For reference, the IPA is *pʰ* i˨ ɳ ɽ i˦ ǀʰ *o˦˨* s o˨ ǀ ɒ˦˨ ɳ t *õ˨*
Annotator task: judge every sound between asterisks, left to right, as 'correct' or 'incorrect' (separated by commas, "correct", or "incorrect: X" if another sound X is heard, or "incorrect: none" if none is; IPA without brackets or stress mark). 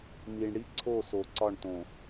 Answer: incorrect: m, correct, correct